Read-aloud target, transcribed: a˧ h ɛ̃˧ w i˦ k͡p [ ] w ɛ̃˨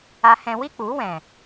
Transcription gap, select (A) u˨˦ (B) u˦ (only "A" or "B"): A